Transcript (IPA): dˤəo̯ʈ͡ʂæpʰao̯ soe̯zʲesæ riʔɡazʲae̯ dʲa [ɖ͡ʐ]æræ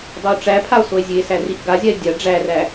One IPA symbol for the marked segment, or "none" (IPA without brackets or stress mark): ɖ͡ʐ